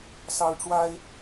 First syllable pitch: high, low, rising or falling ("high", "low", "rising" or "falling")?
high